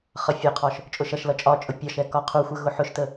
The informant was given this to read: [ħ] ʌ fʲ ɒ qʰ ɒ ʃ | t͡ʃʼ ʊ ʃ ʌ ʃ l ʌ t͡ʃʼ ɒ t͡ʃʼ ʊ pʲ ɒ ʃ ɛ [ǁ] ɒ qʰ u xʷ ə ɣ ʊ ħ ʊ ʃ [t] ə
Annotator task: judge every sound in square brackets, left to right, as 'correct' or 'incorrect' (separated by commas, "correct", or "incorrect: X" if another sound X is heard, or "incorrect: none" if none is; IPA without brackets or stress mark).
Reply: incorrect: χ, incorrect: k, correct